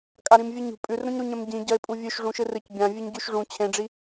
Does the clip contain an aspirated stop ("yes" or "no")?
yes